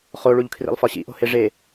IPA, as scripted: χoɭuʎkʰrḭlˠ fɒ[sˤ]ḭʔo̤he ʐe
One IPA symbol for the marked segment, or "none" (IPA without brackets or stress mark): ɕ